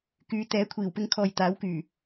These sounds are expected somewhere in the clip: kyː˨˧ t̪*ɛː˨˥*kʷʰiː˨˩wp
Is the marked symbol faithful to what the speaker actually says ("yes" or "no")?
yes